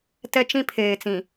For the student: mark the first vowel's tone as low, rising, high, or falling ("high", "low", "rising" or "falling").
high